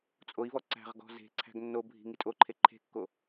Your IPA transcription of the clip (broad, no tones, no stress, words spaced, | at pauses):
t͡sʼoi̯vɔ ǀæ̤ʁɡɔ̤ ze̤ǀʰæ̤ɡ nːobʱi̤ ŋitʼoǃʰe ǃʰe̤kːo